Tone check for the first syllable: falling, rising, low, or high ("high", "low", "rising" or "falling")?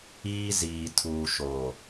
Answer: high